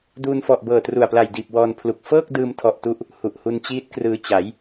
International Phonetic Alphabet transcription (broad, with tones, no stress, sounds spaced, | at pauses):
d uː˧ n f ɔ˨˩ ʔ b ɤː˨˩ t r u˨˩ a̯ p l a˨˩ j d iː˨˩ p̚ w ɔː˧ n pʰ l u˨˩ k̚ f ɤː˥˩ k̚ d ɯː˧ m tʰ ɔ˨˩ ʔ t u˦˥ ʔ | h u˨˩ ʔ h u˧ n t͡ɕ iː˦˥ t̚ k r ɯː˧ t͡ɕ a˩˦ j